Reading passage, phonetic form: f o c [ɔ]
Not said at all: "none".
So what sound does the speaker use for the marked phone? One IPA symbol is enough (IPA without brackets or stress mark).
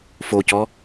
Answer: ɔ